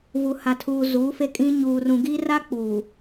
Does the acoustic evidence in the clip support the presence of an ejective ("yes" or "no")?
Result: yes